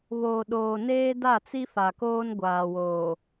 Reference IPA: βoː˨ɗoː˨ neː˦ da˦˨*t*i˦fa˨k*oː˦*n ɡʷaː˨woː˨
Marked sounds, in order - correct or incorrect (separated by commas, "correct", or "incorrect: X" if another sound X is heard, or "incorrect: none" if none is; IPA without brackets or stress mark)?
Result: incorrect: t͡s, correct